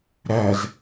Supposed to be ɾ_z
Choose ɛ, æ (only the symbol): æ